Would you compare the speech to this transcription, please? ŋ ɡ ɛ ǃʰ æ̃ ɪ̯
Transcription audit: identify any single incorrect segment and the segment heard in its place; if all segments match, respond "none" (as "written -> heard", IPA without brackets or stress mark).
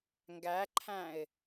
ɛ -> æ